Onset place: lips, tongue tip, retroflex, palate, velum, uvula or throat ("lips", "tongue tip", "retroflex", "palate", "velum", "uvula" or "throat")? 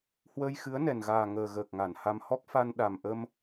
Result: throat